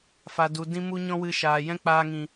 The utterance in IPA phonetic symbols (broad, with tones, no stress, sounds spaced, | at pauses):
f a˨ d u˨ d ĩ˧ m u˦ ɲ ɔ̃˦ w ɨ˧ ʃ aː˨ j ɛ̃˦ k͡p aː˧ ŋ ĩ˨